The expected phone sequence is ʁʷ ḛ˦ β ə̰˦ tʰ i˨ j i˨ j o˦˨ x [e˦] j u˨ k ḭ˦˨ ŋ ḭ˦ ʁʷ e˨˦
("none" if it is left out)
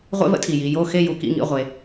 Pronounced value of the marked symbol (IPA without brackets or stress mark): e˦˨